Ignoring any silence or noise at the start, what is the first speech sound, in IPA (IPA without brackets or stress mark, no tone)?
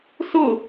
s